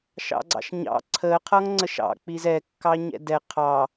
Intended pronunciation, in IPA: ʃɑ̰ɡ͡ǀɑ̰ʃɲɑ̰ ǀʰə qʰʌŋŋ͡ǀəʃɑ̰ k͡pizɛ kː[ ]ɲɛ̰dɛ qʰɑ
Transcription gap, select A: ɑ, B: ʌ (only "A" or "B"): A